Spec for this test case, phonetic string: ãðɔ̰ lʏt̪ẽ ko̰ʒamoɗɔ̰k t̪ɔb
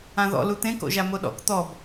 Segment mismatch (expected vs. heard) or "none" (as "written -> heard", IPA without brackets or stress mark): ʏ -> u